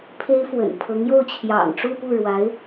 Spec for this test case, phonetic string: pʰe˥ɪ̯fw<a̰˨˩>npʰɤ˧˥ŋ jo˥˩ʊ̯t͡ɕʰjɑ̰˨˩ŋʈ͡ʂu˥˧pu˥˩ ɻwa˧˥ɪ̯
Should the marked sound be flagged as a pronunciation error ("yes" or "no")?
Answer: yes